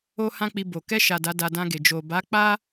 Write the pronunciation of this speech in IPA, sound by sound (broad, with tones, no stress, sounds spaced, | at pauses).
o˦ h ã˦ k͡p i˧ b o˨ k ɛ˧ ʃ a˨ d a˨˦ d a˧ d ã˧ ɡ e˨ d͡ʒ o˨ b a˨˦ k͡p a˦